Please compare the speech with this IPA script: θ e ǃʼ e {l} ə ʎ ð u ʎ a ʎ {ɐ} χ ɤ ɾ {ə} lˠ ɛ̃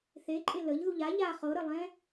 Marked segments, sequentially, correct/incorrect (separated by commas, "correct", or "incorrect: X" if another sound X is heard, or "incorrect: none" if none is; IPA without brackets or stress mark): correct, incorrect: a, correct